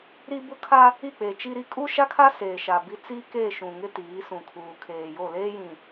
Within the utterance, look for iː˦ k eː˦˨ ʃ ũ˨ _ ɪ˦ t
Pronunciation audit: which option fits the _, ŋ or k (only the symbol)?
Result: ŋ